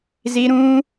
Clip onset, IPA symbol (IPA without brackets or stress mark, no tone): z